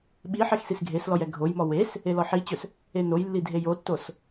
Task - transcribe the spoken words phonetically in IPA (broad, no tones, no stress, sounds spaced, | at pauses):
ɓ i ħ e x s i s ɡʱ e s l ɔ j ɛ ɡʱ o j m ɔ w e s | e l ɔ ħ i t͡ɕ ɵ s | e n o j lː i dʱ e j o tː o s